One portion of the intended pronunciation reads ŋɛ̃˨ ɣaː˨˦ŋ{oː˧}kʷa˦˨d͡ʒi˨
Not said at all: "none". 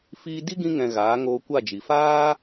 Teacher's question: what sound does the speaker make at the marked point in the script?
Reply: oː˧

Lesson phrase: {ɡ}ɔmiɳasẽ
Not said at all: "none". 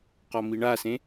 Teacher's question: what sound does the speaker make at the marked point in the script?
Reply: q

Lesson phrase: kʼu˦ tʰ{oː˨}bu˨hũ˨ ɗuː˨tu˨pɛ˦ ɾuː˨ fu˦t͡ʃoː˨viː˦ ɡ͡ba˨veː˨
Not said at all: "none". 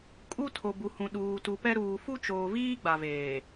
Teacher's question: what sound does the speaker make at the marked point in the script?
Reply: o˨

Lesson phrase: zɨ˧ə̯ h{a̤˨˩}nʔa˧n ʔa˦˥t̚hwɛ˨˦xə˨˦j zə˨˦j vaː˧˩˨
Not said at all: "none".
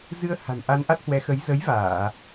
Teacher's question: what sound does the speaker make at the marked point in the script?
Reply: a̤˨˩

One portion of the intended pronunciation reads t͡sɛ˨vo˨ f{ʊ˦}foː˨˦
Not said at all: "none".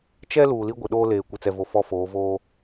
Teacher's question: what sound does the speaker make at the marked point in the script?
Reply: ɔ˦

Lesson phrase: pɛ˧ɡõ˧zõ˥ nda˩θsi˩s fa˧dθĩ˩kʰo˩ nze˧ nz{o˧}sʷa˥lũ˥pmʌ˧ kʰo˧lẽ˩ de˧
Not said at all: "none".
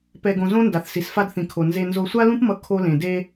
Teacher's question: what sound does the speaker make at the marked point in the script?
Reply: o˧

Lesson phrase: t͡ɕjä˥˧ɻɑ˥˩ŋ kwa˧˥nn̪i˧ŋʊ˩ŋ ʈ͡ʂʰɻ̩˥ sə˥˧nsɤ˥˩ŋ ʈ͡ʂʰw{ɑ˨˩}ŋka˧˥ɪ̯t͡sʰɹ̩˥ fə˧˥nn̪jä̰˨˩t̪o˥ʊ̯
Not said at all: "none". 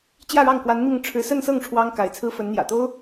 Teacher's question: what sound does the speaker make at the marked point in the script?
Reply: ɑ˥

